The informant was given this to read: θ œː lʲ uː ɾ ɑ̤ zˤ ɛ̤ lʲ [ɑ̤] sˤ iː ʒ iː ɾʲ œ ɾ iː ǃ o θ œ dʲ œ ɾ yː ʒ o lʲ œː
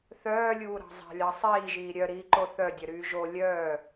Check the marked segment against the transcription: incorrect: ɑ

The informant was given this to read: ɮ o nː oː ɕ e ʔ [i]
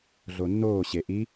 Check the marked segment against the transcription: correct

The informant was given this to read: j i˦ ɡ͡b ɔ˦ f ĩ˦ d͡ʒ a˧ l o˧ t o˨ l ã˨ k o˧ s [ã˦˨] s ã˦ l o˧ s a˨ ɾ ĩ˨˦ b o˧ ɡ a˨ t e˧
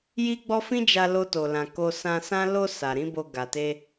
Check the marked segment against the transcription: incorrect: ã˧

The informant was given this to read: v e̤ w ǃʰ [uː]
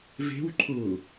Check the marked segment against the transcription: incorrect: ʊː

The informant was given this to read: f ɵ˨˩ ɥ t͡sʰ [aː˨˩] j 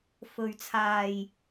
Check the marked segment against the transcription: correct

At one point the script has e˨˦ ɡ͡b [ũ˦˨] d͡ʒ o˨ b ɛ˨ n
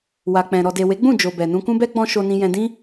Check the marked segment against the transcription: correct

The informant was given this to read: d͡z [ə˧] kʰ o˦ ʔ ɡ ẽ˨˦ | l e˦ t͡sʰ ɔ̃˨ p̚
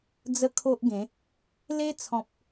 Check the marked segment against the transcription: correct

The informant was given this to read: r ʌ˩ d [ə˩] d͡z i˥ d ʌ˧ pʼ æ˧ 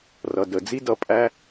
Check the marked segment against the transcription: correct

